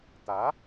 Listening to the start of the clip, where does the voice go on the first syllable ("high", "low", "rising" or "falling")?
rising